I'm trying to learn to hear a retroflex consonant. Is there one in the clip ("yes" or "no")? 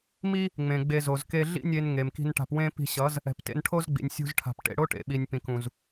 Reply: yes